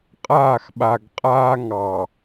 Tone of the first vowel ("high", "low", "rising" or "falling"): falling